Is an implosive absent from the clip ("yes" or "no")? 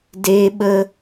no